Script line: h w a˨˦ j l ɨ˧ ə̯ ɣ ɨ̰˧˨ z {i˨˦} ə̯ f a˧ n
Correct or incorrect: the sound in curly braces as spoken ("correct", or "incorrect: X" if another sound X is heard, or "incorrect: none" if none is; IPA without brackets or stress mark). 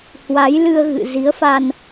correct